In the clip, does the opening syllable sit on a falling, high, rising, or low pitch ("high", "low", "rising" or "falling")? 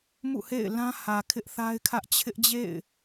falling